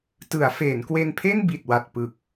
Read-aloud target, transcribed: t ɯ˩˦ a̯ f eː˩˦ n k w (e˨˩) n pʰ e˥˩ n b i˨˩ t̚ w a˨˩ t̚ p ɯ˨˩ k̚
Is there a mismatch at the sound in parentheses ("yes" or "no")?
yes